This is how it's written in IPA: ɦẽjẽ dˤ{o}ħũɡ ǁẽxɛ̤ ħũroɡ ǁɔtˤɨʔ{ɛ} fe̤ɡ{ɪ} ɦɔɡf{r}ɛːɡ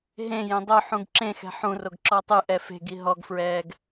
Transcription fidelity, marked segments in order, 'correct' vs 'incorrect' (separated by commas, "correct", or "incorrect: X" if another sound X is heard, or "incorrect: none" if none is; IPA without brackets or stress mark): correct, correct, incorrect: i, incorrect: ɹ